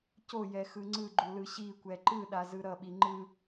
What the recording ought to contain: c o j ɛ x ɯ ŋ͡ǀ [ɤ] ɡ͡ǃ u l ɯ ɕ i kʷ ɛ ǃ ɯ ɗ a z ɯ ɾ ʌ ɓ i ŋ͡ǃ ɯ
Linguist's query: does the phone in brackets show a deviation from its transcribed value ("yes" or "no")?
yes